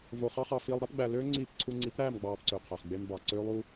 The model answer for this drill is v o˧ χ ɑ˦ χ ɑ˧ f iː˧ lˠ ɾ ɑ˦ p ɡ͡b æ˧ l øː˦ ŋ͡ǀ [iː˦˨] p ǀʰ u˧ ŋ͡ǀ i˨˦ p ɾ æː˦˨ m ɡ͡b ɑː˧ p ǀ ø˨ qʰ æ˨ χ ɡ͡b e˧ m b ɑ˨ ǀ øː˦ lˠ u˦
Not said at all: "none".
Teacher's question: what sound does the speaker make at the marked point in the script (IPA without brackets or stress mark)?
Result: iː˦˨